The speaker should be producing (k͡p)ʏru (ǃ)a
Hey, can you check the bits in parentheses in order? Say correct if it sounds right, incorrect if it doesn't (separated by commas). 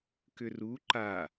incorrect, correct